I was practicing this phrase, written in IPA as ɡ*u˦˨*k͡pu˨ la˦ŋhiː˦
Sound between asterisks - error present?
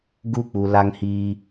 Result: no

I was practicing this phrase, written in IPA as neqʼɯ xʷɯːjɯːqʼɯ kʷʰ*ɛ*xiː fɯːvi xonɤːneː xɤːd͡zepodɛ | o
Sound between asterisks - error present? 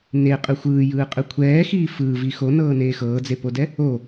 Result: yes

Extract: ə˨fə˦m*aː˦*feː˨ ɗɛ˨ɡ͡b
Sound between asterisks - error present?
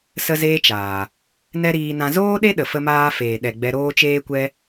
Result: no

